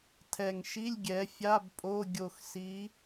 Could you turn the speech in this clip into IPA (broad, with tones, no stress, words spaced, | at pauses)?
tʰɛ˨˩ŋʃi˧˥˧lʲ ɡʲɛ˨˦fʲa˧˥˧b pʼo˧˥˧ ɡʲo˨˩xsi˨˦